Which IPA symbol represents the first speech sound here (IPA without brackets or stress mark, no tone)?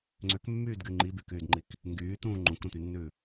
ŋ͡ǀ